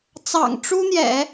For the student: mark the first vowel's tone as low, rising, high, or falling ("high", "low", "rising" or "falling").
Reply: low